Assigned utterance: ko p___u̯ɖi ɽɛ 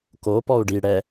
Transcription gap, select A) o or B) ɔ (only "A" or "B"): B